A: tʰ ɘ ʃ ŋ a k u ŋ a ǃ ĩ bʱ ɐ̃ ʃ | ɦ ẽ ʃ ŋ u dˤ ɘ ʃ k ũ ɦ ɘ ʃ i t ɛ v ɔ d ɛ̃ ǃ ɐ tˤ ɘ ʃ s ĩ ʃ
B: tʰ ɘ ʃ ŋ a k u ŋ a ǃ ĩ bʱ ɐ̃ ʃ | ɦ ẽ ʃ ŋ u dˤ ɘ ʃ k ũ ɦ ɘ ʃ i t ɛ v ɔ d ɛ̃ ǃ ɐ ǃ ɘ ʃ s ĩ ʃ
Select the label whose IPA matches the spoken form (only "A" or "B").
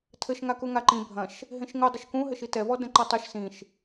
A